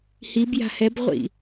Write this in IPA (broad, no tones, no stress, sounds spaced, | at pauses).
h i b j a̤ h ɛ b ʁʷ ḭ